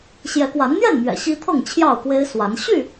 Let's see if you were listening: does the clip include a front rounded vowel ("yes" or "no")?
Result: yes